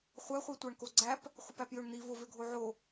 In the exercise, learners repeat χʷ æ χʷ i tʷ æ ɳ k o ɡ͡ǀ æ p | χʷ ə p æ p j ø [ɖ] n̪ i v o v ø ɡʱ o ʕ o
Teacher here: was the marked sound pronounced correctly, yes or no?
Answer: no